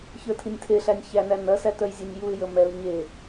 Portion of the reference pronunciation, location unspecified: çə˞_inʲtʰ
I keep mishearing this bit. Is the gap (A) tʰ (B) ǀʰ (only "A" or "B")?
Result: A